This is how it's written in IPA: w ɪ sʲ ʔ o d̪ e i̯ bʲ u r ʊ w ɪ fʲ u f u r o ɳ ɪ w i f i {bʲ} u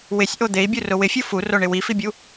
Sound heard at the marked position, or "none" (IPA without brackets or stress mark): bʲ